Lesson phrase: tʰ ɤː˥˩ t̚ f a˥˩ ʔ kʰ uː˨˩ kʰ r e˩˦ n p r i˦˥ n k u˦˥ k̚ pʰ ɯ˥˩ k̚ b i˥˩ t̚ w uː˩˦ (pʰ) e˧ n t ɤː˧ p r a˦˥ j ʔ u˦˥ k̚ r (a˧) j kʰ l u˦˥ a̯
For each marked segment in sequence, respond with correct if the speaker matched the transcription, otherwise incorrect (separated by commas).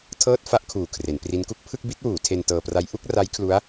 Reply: incorrect, incorrect